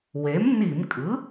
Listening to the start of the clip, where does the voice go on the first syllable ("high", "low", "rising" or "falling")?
rising